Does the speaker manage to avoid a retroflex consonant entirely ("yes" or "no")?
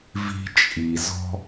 yes